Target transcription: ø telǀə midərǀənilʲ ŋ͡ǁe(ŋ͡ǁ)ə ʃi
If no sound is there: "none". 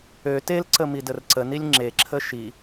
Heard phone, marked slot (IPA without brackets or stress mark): ǁʰ